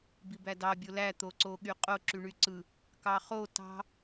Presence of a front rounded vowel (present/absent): present